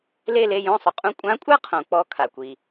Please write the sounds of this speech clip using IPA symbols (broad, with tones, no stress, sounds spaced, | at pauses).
l e˦˨ l e˦˨ j õ˦˨ sˤ ʊ˩ qʼ ũ˦˨ kʷʼ ã˧˥ kʷʼ a˥ qʰ õ˩ k͡p ɔ˦˨ kʰ a˩ kʷ i˩